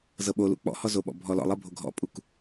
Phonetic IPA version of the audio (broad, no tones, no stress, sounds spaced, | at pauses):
z ɤ ɓ o l ṵ k͡p ɔ̰ h ɔ z o ɓ ɔ̰ bʱ ɔ l ɔ̰ lˠ ɤ bʱ o ɡʱ ɔ̰ pʼ u k